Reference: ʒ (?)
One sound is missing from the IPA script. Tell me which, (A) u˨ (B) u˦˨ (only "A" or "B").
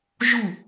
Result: B